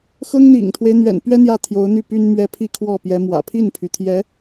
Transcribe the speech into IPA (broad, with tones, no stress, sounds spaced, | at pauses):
x ɤ˥ ŋ n̪ ḭ˨˩ ŋ t̪ʰ w e˦ ɪ̯ n̪ ɥ ɛ̰˨˩ n p ɥ ɛ˥ n̪ j ä˥˩ t̪ʰ j o˧˥ ʊ̯ n̪ y˥˩ p y˥ n m ɥ ɛ˥ pʰ i˥˧ kʰ w ɔ˥˩ p j ɛ˧˥ m w ä̰˨˩ pʰ i˥˩ n pʰ y˩ t̪ʰ j ɛ˧˥